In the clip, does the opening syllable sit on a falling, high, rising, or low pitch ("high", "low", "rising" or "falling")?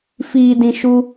low